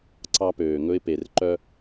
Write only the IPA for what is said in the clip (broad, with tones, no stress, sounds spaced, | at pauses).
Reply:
ǀ ɑ˧ p øː˨ ŋ ɵ˧ ɪ̯ p e˨ r ǃ œ˧